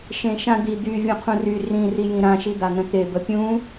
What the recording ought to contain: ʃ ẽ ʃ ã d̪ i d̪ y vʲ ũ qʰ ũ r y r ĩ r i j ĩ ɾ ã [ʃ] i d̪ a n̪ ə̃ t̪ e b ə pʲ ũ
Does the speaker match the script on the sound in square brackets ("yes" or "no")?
yes